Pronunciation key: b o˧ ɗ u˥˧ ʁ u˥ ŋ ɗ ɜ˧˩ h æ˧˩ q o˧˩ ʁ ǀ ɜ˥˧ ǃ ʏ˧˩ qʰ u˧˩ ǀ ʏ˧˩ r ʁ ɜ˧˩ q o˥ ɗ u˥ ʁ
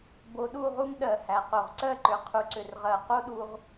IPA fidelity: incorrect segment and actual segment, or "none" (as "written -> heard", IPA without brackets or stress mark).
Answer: none